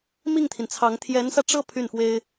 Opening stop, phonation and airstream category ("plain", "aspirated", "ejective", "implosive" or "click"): aspirated